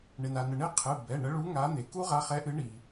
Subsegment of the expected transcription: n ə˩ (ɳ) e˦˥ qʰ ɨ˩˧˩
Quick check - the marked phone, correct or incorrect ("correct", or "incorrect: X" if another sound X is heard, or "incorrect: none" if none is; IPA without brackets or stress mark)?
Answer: correct